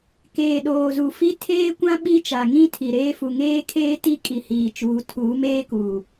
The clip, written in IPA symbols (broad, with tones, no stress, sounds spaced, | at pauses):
k eː˨ ɗ oː˨ z u˨ f i˦ tʰ eː˦ kʷ ã˦ ɓ i˦ t͡ʃ a˨ ŋ ĩ˦ tʰ i˨ ɾ eː˦ f u˨ ŋ eː˦ kʰ eː˦ t i˦ kʼ i˨ h iː˨ t͡ʃ uː˨˦ tʰ uː˨˦ m eː˦ k uː˨